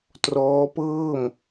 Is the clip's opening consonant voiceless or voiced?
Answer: voiceless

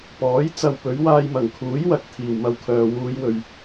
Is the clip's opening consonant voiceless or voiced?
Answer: voiceless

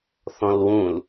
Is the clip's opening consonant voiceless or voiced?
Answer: voiceless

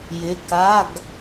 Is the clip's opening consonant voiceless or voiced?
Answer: voiced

